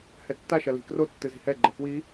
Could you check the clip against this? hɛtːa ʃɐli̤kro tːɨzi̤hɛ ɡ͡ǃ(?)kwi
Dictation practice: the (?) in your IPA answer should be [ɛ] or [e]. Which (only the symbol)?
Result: ɛ